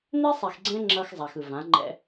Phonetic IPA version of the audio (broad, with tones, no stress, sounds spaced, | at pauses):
n̪ e˦ sˤ i˨ x ɡ͡ǀ ɛ̃˦ ŋ͡ǁ ʌː˦ x zˤ a˨ x ɯ˨ v ã˨˦ ŋ͡ǃ ɛ̰˦